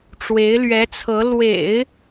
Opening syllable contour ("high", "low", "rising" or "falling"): rising